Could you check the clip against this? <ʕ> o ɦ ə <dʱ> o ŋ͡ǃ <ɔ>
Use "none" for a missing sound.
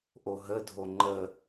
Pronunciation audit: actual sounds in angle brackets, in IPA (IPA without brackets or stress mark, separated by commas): ʔ, dʱ, ə